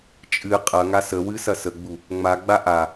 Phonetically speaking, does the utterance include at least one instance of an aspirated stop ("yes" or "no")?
no